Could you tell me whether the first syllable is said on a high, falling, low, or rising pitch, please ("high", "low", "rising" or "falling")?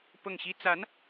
falling